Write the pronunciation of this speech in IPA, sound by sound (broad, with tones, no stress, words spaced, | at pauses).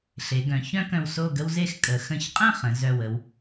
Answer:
ɬe˩˧ɡœ̃˩˧ çœ̃˥ kœ̃˧wso˥˧ɡə˥wze˥x kʼə˩˧ xə̃˧˩çqʼə̃˥˧ χə̃˩˧ zœ˧˩wə˧w